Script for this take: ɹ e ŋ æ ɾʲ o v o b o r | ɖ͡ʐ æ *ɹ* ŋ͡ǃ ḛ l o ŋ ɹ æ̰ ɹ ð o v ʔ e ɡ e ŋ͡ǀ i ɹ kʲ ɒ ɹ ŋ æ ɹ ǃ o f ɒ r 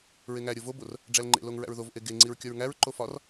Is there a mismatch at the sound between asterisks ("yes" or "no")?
yes